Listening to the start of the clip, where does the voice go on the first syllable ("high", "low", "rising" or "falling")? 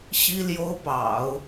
high